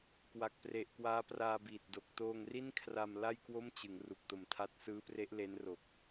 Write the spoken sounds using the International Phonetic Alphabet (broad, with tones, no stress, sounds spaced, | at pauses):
k w a˨˩ k̚ p r e˨˩ ʔ k w aː˦˥ p r aː˧ b iː˨˩ t̚ d o˨˩ k̚ t oː˧ ŋ r i˥˩ n kʰ r a˧ m l a˥˩ j k w o˥˩ m t͡ɕ ɯ˩˦ ŋ r u˨˩ k̚ t o˨˩ m tʰ a˦˥ t̚ s ɯː˦˥ p r e˦˥ ʔ l e˦˥ n r o˨˩ k̚